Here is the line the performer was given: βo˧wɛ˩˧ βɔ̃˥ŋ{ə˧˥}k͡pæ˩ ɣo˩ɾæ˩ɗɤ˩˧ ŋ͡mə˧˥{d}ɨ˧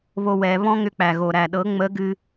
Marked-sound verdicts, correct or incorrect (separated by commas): incorrect, incorrect